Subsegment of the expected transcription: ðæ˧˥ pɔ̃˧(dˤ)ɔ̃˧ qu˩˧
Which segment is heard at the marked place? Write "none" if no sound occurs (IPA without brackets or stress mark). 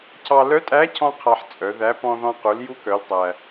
ð